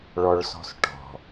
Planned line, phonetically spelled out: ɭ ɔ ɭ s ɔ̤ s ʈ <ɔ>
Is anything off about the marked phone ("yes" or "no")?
yes